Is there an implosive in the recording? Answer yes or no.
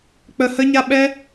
yes